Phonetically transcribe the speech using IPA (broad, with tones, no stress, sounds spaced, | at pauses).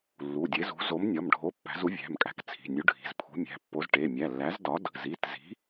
lː u˩˧˩ dʲ e˨˥ z ṳ˨˥ z o˨˥ m nʲ ɒ˩˧˩ m ɖʱ o˨˥ pː æ̤˨˥ z u˨˥ vʲ æ̤˩˧˩ m kʼ æ̤˨˥ k t͡sʰ i̤˩˧˩ nʲ u˨˥ ɖʱ i̤˩˧˩ z pʰ ṳ˨˥ mʲ æ̤˩˧˩ pː o˨˥ z ʈ e˩˧˩ mʲ æ˩˧˩ lː æ˨˥ z d ɒ˨˥ d | z i˩˧˩ t z i̤˨˥